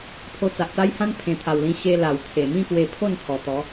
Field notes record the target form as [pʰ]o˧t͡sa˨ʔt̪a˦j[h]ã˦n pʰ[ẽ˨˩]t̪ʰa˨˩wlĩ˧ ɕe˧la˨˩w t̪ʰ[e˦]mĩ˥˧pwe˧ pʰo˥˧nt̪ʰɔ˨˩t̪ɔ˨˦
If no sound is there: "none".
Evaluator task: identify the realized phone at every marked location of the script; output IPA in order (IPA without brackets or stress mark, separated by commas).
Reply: pʰ, h, ẽ˨˩, e˨˩